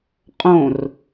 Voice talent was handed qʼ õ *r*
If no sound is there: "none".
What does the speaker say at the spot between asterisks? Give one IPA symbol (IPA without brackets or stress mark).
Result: r